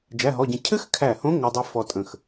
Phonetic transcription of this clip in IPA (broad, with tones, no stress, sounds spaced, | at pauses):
d͡ʒ æ˧˥˧ ɦ ɔ˧˥˧ ɟ ə̃˧ cʰ ɘ˥ x kʰ æ˧˩ h õ˧˥ ŋ ɘ˧ dˤ i˧˥ f ɔ˧ tʼ ə̃˧˩ x